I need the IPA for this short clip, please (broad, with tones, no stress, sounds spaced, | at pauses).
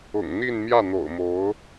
ʊ̰˨˩ ŋ n̪ i˥˧ n m j ä˥˩ n̪ o̰˨˩ ʊ̯ m o˧˥ ʊ̯